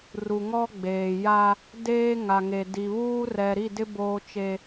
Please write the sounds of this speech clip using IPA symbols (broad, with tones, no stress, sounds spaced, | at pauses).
r u˨ ŋ ɔ˦ ɡ͡b eː˨ j a˦ | d eː˦ ŋ a˨ ŋ e˨ d i˨ β uː˦ r ɛ˨ ɾ i˦˨ d ɪ˦ b oː˦ t͡ʃ e˦